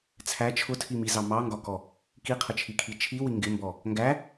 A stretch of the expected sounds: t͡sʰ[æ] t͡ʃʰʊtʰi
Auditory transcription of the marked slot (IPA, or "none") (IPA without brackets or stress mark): æ